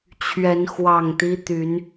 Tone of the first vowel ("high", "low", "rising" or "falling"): rising